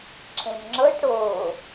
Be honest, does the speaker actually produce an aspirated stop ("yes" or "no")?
yes